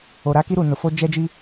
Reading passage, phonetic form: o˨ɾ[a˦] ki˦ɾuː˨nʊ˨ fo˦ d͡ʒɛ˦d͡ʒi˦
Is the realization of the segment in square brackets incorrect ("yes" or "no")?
no